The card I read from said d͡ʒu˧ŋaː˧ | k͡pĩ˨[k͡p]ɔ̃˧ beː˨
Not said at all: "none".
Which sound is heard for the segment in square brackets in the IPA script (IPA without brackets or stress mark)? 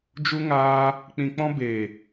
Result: k͡p